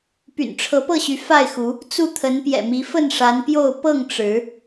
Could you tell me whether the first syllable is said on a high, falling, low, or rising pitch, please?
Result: low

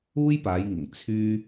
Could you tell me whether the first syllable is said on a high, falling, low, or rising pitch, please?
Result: high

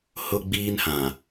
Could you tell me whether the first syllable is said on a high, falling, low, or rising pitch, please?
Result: high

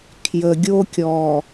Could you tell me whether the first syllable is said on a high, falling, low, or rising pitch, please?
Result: low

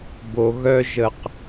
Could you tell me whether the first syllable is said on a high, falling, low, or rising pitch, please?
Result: low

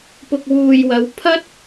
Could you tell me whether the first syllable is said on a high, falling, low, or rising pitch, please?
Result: low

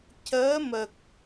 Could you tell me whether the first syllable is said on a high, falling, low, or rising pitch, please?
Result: rising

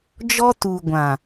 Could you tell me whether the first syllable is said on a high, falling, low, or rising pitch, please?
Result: high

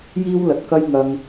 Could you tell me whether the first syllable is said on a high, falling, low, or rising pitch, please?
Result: high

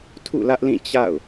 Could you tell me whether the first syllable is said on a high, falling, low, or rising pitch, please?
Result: falling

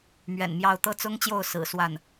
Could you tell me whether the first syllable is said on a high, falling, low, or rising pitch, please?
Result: low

